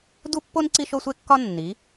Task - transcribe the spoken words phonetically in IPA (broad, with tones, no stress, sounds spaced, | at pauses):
d u˦ pː o˦ n ǀ i˦ ʃ o˦ sʷ e˦ kː ɒ˦ nː i˨˦